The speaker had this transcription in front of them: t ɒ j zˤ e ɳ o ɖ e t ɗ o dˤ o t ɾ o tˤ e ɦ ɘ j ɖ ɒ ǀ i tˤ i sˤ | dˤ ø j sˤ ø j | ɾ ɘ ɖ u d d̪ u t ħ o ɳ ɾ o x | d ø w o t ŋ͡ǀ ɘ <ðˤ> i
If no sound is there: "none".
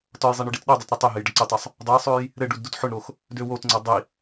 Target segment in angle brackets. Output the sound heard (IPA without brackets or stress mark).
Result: dˤ